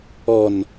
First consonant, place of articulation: alveolar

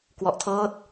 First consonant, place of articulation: velar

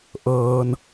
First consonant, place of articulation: glottal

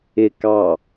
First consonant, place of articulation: velar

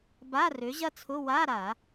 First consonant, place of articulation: labial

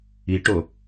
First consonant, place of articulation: retroflex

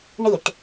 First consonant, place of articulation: retroflex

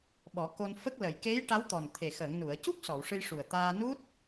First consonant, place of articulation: labial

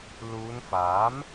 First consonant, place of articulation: alveolar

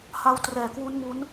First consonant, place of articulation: glottal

